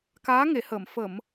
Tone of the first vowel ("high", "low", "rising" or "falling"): rising